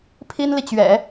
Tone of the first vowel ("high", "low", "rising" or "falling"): high